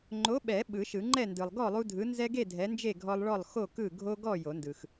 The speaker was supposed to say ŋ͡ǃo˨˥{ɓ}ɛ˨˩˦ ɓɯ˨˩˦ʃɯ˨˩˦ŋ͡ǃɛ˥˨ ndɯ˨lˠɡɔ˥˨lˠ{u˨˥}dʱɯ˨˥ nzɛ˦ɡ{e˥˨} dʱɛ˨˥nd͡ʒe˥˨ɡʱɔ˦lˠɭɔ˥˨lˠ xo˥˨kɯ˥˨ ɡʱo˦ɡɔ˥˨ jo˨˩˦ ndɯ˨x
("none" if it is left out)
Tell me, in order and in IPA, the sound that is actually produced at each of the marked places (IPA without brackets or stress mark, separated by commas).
ɓ, u˦, e˥˨